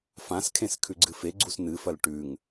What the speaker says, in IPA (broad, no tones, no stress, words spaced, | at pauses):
fãskʰẽs kʰʉɡ͡ǀɨfeɡ͡ǀus nɨfɐl ʈʉŋ